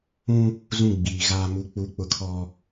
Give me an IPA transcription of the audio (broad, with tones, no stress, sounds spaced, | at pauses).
ũ˦ | z ũ˦˨ ɡ͡b iː˨ ɣ aː˦ m u˦ k͡p u˦ k͡p ʊ˦ kʰ ɔ˦